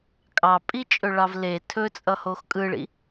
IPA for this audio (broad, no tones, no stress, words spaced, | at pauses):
kʼɑpʼit͡ʃʼɵɭɑv le tʰɵt͡sʼʌhox kʼɯɭḭ